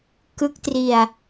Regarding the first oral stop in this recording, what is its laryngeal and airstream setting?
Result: plain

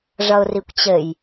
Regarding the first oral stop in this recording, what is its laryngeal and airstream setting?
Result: plain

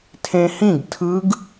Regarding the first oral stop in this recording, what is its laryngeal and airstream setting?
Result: aspirated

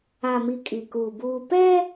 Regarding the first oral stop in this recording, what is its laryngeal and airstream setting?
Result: ejective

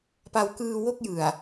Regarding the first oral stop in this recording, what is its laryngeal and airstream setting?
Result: plain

